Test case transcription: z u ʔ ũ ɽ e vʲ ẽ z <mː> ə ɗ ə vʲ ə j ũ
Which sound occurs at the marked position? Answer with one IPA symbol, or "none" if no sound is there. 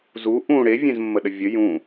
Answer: mː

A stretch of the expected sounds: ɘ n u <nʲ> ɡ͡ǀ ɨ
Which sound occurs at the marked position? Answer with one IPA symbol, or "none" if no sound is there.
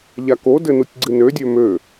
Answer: tʲ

